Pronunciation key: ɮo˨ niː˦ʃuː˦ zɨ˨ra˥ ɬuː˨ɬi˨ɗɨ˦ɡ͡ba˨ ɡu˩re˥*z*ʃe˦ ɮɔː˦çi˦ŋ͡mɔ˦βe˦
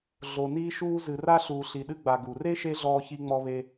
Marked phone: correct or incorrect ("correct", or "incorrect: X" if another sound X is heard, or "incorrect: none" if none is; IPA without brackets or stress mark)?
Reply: incorrect: none